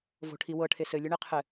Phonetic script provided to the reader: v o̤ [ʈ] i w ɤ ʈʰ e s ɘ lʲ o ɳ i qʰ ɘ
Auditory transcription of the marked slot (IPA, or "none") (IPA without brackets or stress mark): ʈʰ